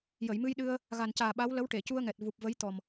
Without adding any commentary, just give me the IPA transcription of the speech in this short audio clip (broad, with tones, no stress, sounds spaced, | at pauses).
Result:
j ə˨˩˨ j m ɨ˧ j ɗ ɨ˧ ə̯ | ɣ a˨˩ n c aː˨˩ ɓ a˧˥ w l ə˧˥ w ʈ e˨˩˨ c u˧ ə̯ ŋ ɛ˨˩ t̚ v u˨˩ p̚ v ə˧˥ j t̪ ɔ˨˩ m